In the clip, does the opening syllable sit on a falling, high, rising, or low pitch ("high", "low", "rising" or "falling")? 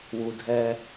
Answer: low